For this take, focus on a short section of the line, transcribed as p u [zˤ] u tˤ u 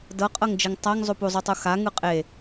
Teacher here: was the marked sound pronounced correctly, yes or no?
yes